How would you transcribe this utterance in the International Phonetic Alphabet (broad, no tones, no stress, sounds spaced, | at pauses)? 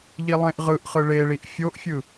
ʎ i lˠ ẽ ʔ ʁ ɯ ʔ χ ɯ ɭ e ɭ i ʔ fʲ o ʔ fʲ ɯ